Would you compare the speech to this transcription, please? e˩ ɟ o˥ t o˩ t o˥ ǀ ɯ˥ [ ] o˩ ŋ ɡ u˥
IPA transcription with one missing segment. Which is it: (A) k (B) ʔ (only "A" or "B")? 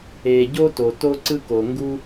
A